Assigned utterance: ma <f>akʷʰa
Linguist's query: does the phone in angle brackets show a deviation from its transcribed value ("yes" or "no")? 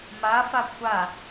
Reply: no